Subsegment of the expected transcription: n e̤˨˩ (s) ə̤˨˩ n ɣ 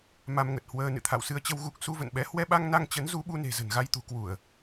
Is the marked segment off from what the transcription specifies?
yes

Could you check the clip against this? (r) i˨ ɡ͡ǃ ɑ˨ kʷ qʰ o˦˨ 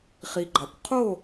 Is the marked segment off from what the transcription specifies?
yes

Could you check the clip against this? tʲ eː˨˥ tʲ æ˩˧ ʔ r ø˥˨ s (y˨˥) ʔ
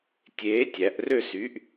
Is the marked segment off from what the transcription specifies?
no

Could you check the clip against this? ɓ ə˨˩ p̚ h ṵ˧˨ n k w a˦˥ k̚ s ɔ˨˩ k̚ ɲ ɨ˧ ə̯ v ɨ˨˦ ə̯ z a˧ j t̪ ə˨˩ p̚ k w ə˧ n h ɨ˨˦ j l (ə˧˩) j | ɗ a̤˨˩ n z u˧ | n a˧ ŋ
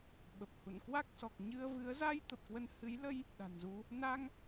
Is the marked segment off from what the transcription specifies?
yes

